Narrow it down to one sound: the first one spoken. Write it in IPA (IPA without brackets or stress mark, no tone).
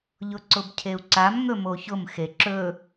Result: ʎ